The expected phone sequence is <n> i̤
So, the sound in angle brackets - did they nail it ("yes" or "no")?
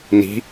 yes